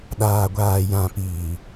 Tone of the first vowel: low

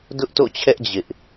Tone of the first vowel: high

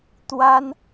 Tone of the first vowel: high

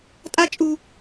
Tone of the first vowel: high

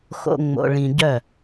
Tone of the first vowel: low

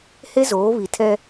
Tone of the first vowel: high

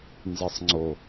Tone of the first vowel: low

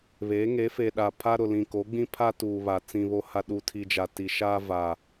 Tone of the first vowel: rising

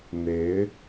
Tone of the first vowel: rising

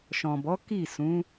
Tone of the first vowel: low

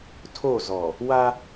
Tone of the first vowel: falling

